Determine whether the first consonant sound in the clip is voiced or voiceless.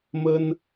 voiced